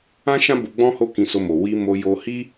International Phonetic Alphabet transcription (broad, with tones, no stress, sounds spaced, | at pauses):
ã˦ ʃ ã˦ b o˧ ɡ͡b ɔ̃˦ h o˦˨ k ĩ˧ s o˧ m o˨ w i˨ m o˨ j o˧ h i˦